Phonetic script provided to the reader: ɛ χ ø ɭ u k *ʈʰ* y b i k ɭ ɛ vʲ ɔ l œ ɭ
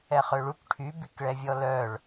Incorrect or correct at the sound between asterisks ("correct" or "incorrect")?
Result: correct